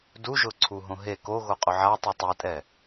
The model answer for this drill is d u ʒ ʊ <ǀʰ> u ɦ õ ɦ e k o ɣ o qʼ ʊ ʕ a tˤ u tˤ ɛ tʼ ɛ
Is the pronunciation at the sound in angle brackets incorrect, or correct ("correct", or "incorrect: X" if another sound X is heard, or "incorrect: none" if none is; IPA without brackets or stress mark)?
correct